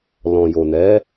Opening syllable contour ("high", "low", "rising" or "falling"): low